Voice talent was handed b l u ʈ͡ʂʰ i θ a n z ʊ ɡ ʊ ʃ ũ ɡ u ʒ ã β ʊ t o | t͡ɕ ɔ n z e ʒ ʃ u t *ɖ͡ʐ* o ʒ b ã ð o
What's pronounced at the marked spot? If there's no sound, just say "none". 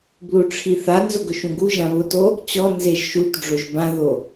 ɖ͡ʐ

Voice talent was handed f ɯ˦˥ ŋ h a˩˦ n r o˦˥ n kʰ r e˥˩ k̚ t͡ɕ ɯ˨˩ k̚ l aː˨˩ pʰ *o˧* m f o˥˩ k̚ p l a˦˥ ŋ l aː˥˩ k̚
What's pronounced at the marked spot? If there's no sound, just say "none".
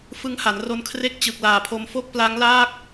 o˧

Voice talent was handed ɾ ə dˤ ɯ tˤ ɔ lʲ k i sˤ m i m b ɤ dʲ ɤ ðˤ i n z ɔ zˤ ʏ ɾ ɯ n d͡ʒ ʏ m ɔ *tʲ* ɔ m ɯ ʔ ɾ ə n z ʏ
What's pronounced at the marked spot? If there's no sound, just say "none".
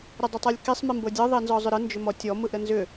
tʲ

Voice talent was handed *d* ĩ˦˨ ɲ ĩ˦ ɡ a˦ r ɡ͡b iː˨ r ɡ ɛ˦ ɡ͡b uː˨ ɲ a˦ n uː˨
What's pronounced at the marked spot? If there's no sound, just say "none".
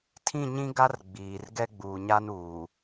tʰ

